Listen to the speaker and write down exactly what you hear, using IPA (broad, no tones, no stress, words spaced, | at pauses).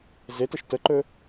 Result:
zetəʃ təǃɵ